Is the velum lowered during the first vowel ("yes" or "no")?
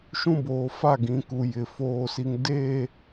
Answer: yes